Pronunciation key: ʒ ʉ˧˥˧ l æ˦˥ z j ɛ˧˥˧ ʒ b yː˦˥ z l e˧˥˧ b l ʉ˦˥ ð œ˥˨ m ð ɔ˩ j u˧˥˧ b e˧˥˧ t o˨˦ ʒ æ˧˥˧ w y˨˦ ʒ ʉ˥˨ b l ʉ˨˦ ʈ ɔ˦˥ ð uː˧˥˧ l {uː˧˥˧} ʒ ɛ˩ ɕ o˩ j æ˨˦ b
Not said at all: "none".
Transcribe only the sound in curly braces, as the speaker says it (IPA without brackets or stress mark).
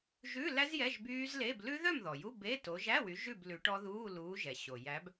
uː˨˦